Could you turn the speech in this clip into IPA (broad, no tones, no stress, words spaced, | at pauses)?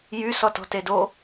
jy sɔtɔ̤tedo